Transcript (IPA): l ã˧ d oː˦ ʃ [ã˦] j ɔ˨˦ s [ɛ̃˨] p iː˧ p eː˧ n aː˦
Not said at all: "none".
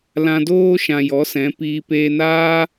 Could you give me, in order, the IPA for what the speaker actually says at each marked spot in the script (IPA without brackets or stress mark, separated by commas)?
ã˨, ɛ̃˨˦